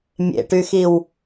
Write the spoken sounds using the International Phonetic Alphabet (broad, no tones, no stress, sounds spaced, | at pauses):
mʲ ḛ ʈ y x i w